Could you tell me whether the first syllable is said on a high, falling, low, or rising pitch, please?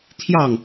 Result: falling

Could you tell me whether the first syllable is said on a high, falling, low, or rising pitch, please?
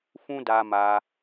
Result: high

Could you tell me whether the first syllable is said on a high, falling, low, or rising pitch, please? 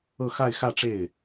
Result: falling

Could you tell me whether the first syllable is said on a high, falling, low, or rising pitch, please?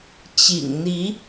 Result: low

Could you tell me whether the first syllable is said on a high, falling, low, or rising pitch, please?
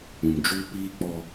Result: low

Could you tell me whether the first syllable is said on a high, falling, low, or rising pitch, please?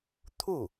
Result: falling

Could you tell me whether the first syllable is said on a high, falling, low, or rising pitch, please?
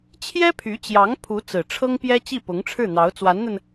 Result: high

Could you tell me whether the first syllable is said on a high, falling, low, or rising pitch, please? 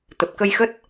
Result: low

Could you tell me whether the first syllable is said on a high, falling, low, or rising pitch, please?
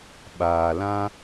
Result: low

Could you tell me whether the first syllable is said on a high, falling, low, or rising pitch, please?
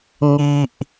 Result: low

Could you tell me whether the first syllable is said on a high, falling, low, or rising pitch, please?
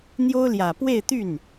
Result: high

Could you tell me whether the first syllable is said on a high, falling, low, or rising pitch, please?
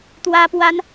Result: high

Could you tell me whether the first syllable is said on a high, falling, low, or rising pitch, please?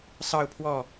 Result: falling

